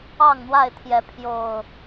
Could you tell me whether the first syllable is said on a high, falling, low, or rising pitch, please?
falling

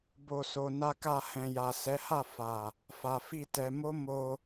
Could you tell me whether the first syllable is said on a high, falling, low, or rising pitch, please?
low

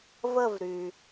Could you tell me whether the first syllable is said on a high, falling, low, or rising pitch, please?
falling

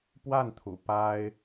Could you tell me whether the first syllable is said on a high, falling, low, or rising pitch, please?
falling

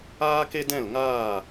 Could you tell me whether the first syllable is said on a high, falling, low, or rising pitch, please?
high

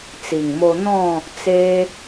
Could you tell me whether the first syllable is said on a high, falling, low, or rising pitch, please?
low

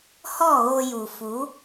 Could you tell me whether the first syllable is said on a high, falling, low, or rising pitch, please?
falling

